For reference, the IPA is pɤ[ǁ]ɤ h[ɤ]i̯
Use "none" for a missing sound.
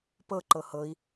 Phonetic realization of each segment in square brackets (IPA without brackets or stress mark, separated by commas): ǃ, ɤ